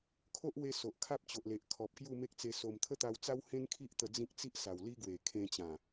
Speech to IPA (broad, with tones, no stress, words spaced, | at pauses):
kʰo˦ʔwe˧ so˨ʔkʰa˦p̚t͡ɕo˨ʔle˨ʔ kʰɔ˨p̚ kju˥˧me˦k̚t͡se˧so˧m t̪ʰə˦t̪a˧wt͡sa˦w hẽ˦nkʰi˦ʔt̪ə˧ d͡zĩ˦k̚ t͡si˦ʔsa˨˩wli˦ɡwe˨˩ kʰẽ˧t͡ɕã˨˩